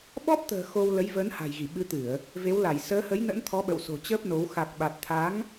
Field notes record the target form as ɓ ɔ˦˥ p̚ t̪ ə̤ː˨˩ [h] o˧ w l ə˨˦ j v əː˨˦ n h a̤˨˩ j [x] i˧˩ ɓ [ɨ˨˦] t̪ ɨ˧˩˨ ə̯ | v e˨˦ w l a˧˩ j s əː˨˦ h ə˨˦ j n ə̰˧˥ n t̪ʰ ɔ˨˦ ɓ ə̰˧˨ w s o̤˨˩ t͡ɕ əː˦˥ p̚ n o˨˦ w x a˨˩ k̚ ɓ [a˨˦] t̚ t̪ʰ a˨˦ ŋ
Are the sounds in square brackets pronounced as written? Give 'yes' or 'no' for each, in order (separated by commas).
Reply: no, no, yes, no